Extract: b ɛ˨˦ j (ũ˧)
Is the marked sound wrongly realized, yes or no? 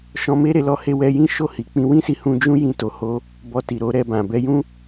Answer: yes